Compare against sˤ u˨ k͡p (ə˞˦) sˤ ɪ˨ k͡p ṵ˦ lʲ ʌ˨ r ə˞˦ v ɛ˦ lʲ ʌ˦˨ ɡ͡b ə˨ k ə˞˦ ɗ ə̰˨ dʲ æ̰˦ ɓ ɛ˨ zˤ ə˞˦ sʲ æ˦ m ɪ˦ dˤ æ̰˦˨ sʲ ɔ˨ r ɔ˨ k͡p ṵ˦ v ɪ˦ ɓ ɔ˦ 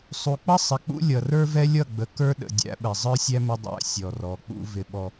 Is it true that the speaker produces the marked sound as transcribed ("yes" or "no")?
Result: no